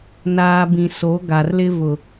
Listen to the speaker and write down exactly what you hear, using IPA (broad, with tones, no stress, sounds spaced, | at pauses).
n aː˨ b ĩ˨ s o˨˦ ɡ a˨ r l ɪ˦ v ʊ˦